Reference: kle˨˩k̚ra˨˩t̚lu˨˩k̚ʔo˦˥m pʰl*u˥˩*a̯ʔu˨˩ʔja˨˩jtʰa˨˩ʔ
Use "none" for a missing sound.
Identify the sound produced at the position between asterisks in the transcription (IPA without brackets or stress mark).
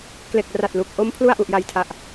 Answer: u˥˩